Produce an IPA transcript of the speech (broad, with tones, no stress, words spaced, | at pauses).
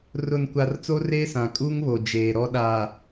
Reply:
rʊ˨nkʷa˨r t͡so˦reː˦sã˨ kʼu˦ŋβo˨ d͡ʒeː˨ɾɔ˦ɗa˨